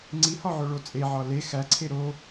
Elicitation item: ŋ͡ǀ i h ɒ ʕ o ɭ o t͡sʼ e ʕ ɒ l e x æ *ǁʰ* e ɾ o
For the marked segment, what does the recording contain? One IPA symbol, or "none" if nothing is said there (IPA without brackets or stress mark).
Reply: ǀʰ